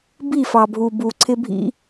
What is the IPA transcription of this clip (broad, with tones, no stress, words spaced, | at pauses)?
bi˦˨fɑ˨bʱu˨ bu˨ǀʰɪ˦bʱḭ˦